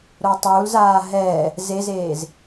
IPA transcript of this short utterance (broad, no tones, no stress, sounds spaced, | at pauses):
ɾ o tˤ uː l z aː ɦ ɛː | z e z eː z